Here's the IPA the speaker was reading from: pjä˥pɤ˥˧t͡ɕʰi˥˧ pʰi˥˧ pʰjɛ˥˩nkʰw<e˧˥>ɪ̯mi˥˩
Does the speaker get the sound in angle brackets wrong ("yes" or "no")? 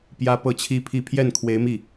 no